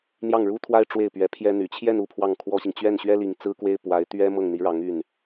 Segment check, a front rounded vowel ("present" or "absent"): present